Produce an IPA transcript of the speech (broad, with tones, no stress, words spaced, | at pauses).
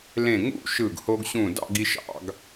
lẽ˧˩ŋṵ˥˧ ʃɯ˧˩ɡho˧ɡɕũ˧˩ dɑ̰˥˧ɡi˧ ʃɑ̰˥˧ɡ